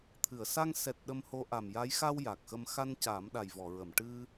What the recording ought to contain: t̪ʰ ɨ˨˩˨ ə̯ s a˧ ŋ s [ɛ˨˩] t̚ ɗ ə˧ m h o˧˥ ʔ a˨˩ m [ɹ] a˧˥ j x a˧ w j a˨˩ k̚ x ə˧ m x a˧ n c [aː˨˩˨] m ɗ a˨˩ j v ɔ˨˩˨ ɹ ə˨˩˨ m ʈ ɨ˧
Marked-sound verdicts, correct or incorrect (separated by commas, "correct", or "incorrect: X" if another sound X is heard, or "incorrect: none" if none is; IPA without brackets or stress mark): correct, incorrect: j, incorrect: aː˨˩˦